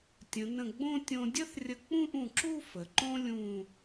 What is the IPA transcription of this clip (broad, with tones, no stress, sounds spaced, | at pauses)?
tʲ ə̃˩˧ n ə̃˧˩ ɡ͡b õ˥˧ tʲ õ˧ dʲ ə˥ θ rʲ ə˧ k͡p ũ˥˧ ʔ ũ˧˩ ǁ u˥˧ f ə˩˧ ǃ õ˥ lʲ ũ˥˧